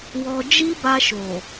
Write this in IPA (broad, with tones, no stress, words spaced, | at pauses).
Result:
wɔ˧ d͡ʒi˦ba˧ ʃo˨